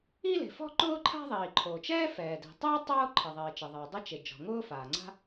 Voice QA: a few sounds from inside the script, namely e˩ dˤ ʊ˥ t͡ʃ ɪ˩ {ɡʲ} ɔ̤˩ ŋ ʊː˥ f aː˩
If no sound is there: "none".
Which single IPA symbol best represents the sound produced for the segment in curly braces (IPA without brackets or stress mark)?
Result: d͡ʒ